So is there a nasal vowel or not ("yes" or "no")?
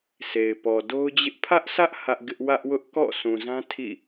yes